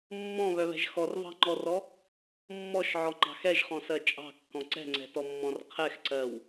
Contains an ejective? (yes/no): yes